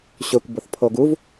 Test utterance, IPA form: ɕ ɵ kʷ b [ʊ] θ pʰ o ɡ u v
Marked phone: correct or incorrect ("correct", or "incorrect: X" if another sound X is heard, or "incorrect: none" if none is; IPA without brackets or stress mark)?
correct